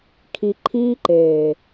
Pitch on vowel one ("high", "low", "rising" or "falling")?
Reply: low